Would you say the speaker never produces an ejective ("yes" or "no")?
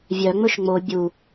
yes